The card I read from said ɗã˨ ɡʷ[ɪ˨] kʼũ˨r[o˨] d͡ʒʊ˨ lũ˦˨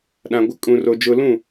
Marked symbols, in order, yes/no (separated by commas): yes, yes